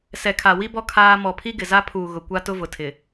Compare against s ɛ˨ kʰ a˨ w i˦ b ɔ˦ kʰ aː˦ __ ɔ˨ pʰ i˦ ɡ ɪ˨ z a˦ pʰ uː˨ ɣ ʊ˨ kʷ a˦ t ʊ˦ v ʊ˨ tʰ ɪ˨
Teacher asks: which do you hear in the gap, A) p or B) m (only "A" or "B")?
B